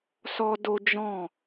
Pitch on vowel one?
high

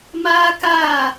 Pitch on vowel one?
high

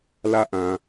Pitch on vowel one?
high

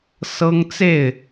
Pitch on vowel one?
high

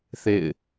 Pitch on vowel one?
falling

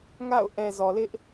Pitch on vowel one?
falling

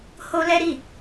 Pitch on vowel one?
high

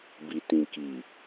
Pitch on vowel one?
low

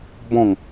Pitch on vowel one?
falling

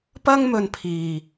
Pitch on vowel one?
high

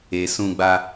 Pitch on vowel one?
low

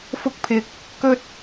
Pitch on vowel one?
high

